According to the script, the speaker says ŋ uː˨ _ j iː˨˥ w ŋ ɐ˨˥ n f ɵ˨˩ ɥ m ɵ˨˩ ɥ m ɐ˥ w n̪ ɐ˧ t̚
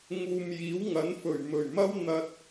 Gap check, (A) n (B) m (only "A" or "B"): B